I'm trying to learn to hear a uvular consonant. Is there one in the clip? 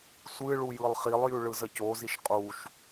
yes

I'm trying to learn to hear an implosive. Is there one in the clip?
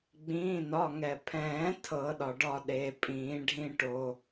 yes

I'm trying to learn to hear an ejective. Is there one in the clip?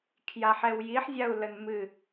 no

